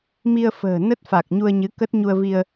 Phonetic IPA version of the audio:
mi˧ə̯fə̤ː˨˩nə˦˥t̚ fa˨˩k̚ ɲu˧ə̯ɲɨ˨˦ kə˦˥t̚ɲu˧ə̯ vi˧ə̯

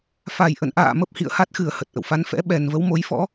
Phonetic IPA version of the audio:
fa˨˩j ʔə̰˧˨nʔa̰ː˧˨ mə˦˥p̚hḭ˧˨ə̯ha˦˥t̚xɨ˨˩ə̯ hə˨˩t̚ʔə̰˧˨wfa˨˦nfɛ̰˧˥ ɓɛ˨˩nvə˨˦wmo˨˦jfɔ̰˧˥

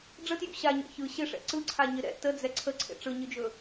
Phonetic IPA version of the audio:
ɖ͡ʐətjṵ ɕaɲɛ̰ çɯ ɕɪʂɛ̰ ǀɯǀʰaɲɪ ɾɛ̰ təd͡zɛ ǀʰəǀʰḛ ʈ͡ʂɯɲɯd͡ʒɵ

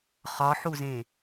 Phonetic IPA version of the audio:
χɒħuzẽ

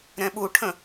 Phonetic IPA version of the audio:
ɾɛ̃ɓuʈʰə̃

